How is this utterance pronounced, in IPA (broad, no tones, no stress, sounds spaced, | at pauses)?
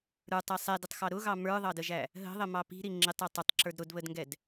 ɾ ə˞ tˤ ɛ sˤ ɛ d ə tˤ x ɑ ɾ ʊ ɣ ɑ m ə˞ ðˤ ɑ d ə ʒ æ | ɦ ə̤ ðˤ ə m ɑ p i̤ ɾ i ŋ͡ǁ ɪ tˤ ɛ tˤ ʊ tˤ ǁ ə˞ d ɾ ʊ d β ə d ŋ ɡ ɛ d